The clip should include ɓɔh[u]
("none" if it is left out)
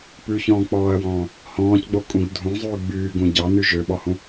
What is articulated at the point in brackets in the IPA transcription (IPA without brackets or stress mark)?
ũ